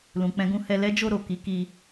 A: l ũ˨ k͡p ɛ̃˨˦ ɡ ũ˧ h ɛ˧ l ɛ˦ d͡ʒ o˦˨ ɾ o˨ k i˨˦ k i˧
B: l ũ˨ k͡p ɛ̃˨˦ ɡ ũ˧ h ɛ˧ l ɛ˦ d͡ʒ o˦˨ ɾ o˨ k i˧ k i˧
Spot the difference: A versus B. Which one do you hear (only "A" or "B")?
A